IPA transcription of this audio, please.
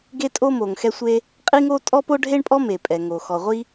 ɡ e˥ tʼ o˥ m o˩ ŋ x ɛ˥ sʷ e˥ | qʼ i˥ ŋ o˥ tʼ ɔ˥ p o˥ ɖʱ e˥ ɳ pʼ ɔ˥ m e˩ pʼ ɛ˩ ŋ o˩ x ɔ˩ ʁʷ i˥

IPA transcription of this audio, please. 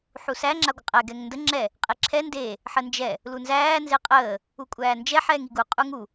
ħ u s æ ŋ͡ǁ a ɡʷ ə qʼ ɛ ɡ ɛ ŋ n d ə ŋ͡ǁ ɛ | qʼ e ǁʰ ɛ n d e | ħ ə n d͡ʒ ɛ | l u n z æː n z e qʼ əː | u kʷʼ æː n d͡ʒ ɛ ħ ɛː ŋ i ɡ u qʼ u ŋ u

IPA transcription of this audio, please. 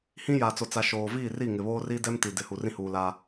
h ĩ˦ j a˨ t͡s o˨ t͡s a˨ ʃ oː˨ v iː˦˨ r i˦˨ ŋ ɪ˨ β oː˦ r i˦ d ɛ˦ m t i˨ d ɪ˨˦ h u˨ r ĩ˦ h uː˨ l a˦

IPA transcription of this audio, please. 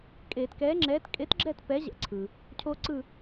kʼ eː˧˩˧ t k ɛː˨˥ ŋ͡ǁ ɛː˨˥ t kʼ e˨˥ t ɡ͡ǁ ɛ˦˨ t p ɛ˨˥ ʑ ɛ̰˨˥ ǀʰ ɯ˩ | cʰ o˦ ǀ ɯ˦˨

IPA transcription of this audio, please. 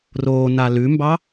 r oː n a l ʉ m b ɑ

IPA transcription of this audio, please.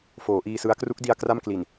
f oː˩˦ ʔ iː˧ s ɯ˦˥ a̯ k r u˦˥ k̚ d i˧ a̯ k r a˥˩ m k l i˨˩ n

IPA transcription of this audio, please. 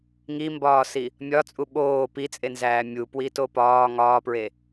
ŋ i m b ɒː s i | mʲ ɒ t͡sʼ u ɓ oː p i t͡sʼ e n z æː mʲ u p w i t o p ɒː ŋ ɒː p ɹ e

